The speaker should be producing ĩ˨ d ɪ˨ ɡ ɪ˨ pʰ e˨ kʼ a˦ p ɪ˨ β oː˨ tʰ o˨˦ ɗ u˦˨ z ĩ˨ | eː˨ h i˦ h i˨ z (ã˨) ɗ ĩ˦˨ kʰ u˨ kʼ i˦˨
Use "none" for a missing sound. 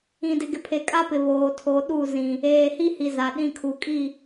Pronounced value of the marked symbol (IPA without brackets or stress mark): a˨